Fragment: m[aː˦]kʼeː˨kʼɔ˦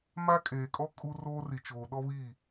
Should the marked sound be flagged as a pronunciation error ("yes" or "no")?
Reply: no